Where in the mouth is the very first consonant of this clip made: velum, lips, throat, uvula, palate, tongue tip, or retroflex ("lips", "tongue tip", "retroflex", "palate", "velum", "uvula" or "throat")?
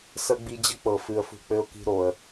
tongue tip